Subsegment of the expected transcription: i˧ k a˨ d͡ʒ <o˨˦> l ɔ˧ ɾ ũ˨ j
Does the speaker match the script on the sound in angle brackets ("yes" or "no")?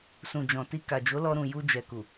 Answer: yes